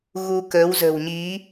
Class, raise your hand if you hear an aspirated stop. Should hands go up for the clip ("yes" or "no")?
no